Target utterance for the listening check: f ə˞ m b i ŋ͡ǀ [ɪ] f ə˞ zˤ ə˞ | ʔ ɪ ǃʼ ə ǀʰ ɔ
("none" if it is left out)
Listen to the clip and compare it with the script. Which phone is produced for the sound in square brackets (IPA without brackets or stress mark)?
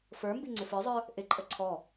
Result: ɪ